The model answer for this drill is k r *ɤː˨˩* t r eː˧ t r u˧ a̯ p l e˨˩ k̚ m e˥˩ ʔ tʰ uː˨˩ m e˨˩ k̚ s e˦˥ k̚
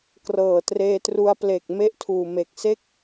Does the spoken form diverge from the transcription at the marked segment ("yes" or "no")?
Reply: no